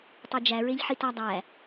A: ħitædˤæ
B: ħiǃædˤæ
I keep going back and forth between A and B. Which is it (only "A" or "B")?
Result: A